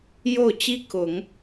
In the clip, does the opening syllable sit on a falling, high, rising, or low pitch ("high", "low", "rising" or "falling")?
falling